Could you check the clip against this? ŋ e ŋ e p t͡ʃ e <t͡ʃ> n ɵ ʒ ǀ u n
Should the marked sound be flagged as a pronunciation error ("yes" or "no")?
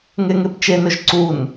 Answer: yes